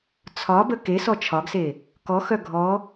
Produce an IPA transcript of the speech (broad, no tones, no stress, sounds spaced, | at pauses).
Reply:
t͡sʰ ɒ b ə k e s ɔ t͡ʃʰ ɒ ɡ s e | k ɔ x œ ɡʱ ɔ